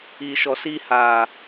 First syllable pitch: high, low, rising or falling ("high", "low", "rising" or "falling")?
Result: low